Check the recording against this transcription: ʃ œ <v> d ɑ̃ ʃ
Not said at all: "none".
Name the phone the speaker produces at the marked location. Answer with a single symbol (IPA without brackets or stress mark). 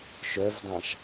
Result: v